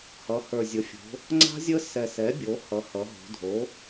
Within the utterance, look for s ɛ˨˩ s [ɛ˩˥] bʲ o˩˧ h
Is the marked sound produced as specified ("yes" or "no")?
yes